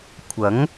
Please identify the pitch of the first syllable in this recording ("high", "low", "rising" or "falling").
rising